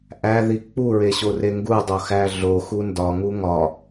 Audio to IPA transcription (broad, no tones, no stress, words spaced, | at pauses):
ʔæði k͡puɹeɕore ŋɡudˤoxæ ɮoxu ndɒŋu ŋɒ